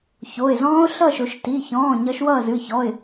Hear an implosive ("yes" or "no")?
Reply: no